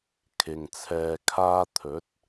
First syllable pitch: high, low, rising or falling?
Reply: low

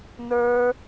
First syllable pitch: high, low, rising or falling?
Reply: high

